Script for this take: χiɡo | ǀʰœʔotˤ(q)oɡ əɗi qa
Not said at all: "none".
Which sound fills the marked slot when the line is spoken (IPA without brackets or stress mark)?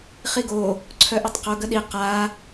q